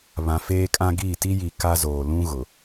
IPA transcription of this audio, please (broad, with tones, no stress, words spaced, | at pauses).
βã˨ feː˦kʼã˦ ɡiː˦˨ti˦ji˨ ka˦zoː˨ lũ˦ ɣʊ˨